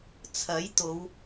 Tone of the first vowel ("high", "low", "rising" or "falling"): rising